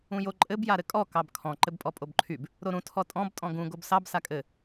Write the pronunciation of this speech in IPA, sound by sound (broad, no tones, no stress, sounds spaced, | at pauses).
ũ j o ǃʼ ɘ b j a ɾ ɘ kʼ ɔ k ɑ b kʰ ɔ̃ ǃ ɘ b pʼ ɔ pʼ o b ǃʰ y b | ɾ o ɾ ũ tʰ ɔ tʼ ɔ̃ b tʼ ɔ̃ ɡ ũ ɡ o b s ɑ b s a kʼ ɘ